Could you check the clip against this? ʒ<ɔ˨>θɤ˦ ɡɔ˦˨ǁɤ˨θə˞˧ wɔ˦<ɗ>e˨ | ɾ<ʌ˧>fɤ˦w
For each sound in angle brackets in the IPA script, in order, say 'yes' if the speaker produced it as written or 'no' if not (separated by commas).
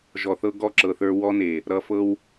yes, no, yes